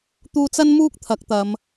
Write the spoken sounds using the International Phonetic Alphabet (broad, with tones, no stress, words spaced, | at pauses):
t̪uː˧t͡sɐ˥nmuː˥k̚ t̪ʰɐ˨˥k̚t̪ɐ˨˧m